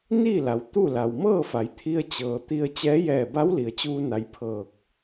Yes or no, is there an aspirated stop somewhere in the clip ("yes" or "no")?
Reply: yes